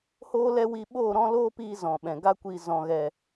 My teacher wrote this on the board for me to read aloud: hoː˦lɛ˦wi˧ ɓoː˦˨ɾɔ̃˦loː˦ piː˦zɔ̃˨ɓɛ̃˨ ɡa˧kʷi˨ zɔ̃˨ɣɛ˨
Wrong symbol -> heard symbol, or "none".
none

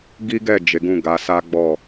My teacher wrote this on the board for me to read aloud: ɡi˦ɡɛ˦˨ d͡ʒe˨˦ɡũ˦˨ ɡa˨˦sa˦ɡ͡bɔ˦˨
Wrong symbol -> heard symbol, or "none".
none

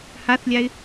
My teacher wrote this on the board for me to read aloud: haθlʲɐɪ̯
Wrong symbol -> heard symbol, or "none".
ɐ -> a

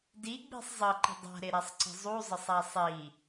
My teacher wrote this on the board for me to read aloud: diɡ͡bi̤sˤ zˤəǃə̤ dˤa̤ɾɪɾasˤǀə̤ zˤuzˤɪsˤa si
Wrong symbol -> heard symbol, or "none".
s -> sˤ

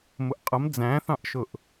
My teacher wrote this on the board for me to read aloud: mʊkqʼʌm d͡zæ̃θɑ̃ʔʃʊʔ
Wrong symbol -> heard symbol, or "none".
k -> ʔ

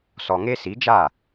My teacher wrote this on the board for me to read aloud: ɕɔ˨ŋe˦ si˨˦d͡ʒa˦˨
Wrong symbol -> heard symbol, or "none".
ɕ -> s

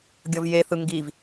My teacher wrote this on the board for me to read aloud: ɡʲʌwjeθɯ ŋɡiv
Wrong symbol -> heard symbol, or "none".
w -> v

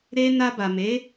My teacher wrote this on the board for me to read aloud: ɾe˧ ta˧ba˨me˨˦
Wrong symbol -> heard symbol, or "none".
t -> n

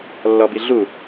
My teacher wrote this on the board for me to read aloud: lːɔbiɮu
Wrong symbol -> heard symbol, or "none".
none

